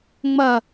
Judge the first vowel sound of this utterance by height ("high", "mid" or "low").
low